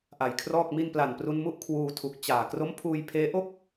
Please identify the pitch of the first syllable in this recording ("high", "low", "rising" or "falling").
low